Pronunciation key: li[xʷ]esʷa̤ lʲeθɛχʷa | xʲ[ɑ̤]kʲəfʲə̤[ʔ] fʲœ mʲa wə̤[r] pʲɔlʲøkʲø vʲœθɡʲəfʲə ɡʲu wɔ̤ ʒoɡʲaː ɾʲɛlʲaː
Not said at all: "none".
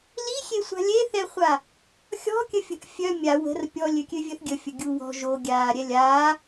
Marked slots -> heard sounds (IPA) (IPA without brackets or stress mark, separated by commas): xʲ, ɔ̤, ʔ, r